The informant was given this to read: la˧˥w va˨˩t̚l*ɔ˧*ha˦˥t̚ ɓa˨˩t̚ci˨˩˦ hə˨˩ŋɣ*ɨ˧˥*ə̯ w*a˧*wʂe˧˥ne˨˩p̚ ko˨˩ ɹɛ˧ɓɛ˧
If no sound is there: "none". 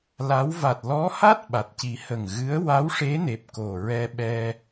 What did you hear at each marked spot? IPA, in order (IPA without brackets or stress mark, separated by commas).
ɔ˧˥, ɨ˧˥, a˧˥